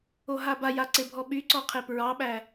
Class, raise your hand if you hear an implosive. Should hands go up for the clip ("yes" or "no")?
yes